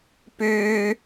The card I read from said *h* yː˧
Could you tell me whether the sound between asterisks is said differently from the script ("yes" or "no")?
yes